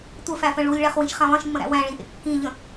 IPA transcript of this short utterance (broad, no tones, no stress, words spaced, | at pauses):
tʷəfæfə̃ ɭulʲɭæχwĩʃχæ̃ lˠĩʃmːə̃ɾæ̰ wæ̃ɭĩʔḛ kːĩʎə̃